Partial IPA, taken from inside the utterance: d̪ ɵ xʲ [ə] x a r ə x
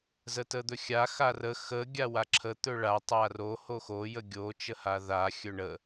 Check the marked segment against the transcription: incorrect: a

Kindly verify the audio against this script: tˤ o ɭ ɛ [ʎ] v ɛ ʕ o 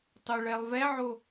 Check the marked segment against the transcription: incorrect: lˠ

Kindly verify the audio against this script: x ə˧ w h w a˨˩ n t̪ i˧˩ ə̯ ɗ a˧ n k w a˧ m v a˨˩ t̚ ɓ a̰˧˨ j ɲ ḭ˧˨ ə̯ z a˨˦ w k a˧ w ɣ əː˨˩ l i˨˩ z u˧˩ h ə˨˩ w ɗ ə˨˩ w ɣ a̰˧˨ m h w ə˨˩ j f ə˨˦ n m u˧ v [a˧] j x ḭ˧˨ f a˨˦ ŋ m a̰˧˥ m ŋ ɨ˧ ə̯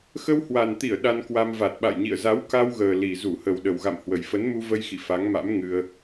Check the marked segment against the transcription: incorrect: ə˧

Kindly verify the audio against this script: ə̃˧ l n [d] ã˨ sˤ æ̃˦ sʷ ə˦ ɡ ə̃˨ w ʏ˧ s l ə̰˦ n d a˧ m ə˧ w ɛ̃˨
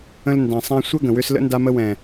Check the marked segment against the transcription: correct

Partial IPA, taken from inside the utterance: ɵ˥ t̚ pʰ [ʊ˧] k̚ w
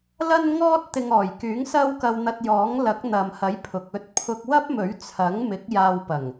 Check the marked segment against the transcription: correct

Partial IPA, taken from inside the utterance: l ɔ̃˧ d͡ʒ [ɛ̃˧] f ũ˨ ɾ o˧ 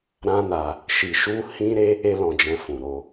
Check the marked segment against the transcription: correct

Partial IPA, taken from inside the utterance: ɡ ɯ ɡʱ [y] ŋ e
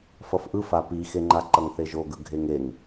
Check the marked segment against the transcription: incorrect: e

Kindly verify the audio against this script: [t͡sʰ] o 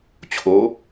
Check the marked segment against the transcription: incorrect: t͡ɕʰ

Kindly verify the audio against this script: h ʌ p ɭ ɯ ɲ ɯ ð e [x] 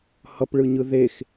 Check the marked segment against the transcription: correct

